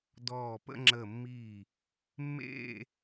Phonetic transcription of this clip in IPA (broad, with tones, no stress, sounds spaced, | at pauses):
d ɔː˧˩ p ə̰˥˧ ŋ͡ǁ ə˧˩ mː i˧˩ | mː ḛ˥˧